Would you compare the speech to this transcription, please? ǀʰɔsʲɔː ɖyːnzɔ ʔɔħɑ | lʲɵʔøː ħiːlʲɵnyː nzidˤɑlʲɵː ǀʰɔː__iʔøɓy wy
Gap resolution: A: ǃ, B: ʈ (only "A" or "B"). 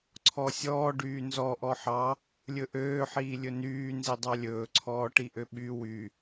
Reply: B